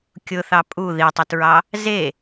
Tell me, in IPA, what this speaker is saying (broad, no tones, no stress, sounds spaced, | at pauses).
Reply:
kʲ ʊ θ ɑ pʼ u ð i tˤ u t ɹ ɑ | z e